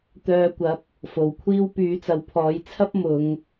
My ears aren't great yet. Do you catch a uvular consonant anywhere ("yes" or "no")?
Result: no